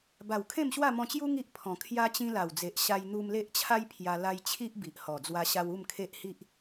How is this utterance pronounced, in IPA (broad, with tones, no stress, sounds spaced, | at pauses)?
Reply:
b a˨˩ w kʰ ẽ˥˧ m ɕ w a˥˧ m ɔ̃˧ t͡ɕ j u˦ ŋ i˦ ʔ pʰ ɔ̃˨˩ kʰ j a˧ t͡ɕ ĩ˧ l a˨˩ w d͡z e˨ ʔ ɕ a˧ j n̪ u˧ m l e˦ ʔ t͡ɕʰ a˦ j pʰ j a˧ l a˧ j t͡ɕʰ i˦ ʔ b i˨ ʔ h ɔ˨˩ d͡z w a˧ ɕ a˧ w u˥˧ m kʰ e˦ ʔ h i˦ ʔ